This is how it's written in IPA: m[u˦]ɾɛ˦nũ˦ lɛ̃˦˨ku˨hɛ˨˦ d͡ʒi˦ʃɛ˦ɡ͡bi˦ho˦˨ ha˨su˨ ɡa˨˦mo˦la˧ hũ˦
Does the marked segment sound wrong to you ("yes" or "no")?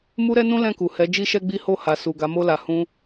no